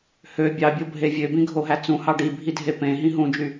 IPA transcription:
h ø bʲ ɑ bʲ o bʱ e vʲ ø b ĩ ɡʱ o ɦ æ t͡s ũ h ɑ ɖ i bʱ i dʱ e p ẽ ɦ ĩ ɦ ũ d͡ʒ y

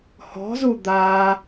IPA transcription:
h ɔ̤ z u d̪ a

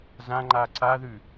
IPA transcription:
z ã ŋ͡ǃ a ǀ a ð ʉ

